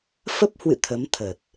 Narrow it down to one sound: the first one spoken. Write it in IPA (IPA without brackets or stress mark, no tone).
f